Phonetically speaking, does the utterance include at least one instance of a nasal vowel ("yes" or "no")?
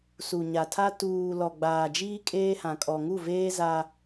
yes